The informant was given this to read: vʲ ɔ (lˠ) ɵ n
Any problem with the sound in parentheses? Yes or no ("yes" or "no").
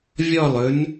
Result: no